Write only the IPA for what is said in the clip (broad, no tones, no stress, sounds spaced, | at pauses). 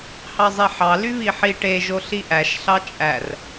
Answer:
h ɑ zˤ e ħ ɑ l y β i ħ i ʈ e ʒ o ɬ i ʔ æ ʃ ɬ ɑ t͡ʃʼ æ r